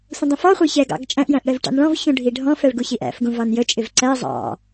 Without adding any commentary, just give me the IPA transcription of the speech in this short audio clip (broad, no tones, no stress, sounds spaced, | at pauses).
sʷ ə̃ dˤ ə̃ f ɔ χʷ ə˞ ç ɛ ɡ ɑ̰ ɡ t͡ʃʼ æ̃ ʔ j æ̃ ʔ ɽ ɛ v ʈ ɑ̰ n ɭ ɔ̃ v ç ũ ɖʱ i ɖʱ ɔ̃ f ɛ ɭ ɡ u ç i ʔ æ̰ f ɡ ũ v ɑ n j ə t͡ʃʼ ɪ v ǀ æ zˤ ɑ̰